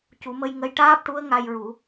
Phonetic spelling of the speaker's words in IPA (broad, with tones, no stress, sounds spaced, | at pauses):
c u˨˩˦ m ə˧ j ŋ ə˧ j ʈ aː˦˥ p̚ ʈ u˧˥ ə̯ ŋ a˧ j ɹ u˨˩˦